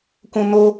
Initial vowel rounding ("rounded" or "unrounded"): rounded